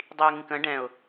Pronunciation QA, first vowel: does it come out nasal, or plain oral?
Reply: oral